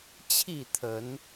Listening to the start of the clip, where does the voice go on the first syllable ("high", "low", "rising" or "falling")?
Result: falling